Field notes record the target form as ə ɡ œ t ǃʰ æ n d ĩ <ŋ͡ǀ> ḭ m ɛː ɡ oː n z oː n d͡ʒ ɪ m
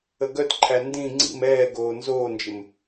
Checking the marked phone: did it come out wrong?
no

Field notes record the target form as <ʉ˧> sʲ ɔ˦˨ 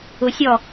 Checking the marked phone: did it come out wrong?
yes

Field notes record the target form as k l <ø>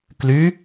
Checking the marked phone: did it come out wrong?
yes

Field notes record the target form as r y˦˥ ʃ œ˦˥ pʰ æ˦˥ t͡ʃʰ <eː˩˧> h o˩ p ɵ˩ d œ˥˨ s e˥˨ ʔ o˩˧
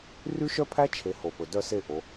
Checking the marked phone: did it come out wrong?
yes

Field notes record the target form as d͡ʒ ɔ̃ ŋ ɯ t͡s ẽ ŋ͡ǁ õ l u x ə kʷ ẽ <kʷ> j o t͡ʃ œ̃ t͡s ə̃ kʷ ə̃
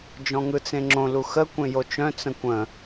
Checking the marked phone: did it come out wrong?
yes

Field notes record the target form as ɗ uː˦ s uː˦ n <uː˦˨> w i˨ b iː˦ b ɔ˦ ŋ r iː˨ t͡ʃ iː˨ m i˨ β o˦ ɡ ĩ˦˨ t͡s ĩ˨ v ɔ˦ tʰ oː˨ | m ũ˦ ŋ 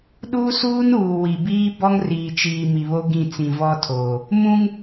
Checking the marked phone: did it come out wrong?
yes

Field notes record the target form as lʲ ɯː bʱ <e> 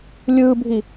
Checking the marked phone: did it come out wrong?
yes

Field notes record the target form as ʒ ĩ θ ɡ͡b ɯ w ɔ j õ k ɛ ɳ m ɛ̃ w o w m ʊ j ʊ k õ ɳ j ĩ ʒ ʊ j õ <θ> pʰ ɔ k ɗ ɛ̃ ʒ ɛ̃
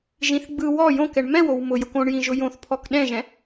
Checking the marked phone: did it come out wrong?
no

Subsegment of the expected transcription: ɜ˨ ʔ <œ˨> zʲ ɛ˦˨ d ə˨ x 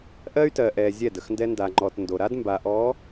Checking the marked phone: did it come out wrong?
yes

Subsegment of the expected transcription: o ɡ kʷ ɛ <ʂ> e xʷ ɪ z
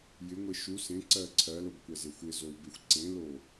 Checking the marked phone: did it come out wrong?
yes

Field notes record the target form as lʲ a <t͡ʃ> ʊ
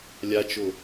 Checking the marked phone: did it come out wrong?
no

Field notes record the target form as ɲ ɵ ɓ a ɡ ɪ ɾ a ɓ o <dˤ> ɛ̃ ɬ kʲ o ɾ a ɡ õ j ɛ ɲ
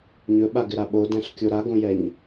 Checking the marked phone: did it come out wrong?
yes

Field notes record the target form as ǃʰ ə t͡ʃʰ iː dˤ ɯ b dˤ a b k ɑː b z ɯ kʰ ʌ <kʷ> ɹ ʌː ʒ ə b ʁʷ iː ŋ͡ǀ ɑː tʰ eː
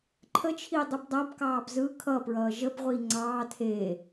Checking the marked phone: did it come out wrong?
yes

